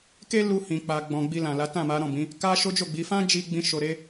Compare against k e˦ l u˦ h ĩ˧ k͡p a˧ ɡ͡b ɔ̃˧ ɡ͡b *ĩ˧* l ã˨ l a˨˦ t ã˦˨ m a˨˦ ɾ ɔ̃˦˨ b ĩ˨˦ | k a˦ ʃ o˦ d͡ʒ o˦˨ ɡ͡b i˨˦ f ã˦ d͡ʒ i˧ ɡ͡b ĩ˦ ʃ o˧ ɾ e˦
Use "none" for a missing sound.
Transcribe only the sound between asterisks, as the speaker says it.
i˧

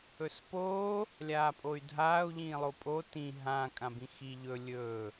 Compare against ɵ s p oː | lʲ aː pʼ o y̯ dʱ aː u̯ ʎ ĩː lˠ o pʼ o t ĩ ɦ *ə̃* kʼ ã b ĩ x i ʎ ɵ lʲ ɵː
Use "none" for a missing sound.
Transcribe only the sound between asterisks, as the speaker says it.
ã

